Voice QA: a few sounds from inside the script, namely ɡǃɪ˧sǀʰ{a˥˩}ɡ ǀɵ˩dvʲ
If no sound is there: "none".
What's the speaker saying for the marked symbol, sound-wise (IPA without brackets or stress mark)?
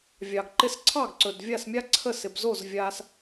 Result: ɑ˥˩